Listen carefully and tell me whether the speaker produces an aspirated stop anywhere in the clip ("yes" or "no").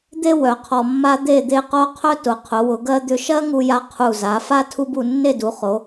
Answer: yes